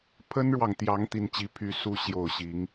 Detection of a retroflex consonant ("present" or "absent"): present